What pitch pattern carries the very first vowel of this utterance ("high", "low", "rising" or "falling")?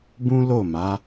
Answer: high